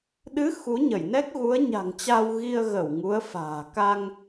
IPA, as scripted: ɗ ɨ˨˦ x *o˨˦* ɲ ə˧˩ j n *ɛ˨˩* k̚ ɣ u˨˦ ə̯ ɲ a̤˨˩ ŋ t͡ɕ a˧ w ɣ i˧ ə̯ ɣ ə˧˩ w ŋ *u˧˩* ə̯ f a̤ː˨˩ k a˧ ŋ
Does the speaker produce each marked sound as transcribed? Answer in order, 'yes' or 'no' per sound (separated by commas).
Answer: no, no, no